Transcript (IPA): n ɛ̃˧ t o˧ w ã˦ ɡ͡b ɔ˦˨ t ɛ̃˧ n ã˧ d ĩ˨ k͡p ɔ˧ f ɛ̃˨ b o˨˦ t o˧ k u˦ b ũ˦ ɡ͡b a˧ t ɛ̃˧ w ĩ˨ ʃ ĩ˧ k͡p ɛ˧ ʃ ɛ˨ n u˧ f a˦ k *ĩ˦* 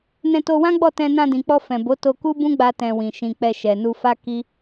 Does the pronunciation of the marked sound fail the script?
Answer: yes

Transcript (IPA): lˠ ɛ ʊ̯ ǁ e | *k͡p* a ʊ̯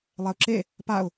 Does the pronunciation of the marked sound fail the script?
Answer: yes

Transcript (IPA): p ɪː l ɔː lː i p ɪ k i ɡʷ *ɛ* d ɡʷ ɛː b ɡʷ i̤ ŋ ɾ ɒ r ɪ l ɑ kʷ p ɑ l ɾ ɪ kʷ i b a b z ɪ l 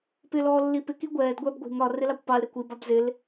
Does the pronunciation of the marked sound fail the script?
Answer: yes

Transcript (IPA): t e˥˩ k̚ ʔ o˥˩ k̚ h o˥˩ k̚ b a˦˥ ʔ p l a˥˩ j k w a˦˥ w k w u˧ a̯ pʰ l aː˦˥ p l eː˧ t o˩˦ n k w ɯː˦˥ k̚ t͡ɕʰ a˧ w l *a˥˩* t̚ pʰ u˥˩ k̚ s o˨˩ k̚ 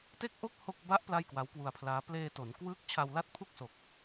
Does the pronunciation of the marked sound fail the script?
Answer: no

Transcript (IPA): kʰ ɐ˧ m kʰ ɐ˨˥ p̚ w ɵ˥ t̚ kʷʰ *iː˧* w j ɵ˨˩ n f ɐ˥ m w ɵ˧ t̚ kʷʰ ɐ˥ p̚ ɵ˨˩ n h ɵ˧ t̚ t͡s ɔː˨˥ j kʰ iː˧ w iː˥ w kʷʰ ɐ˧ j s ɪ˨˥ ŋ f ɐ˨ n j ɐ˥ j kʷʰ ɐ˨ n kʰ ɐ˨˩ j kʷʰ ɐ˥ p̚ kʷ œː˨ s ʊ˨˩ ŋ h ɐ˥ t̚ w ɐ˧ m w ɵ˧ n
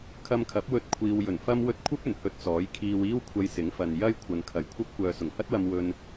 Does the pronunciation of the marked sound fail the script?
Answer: no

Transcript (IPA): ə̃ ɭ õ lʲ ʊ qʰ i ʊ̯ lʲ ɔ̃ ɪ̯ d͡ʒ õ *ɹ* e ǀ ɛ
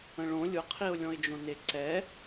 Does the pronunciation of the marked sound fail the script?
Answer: yes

